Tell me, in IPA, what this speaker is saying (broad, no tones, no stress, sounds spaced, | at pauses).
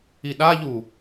i ɗ a ʎ u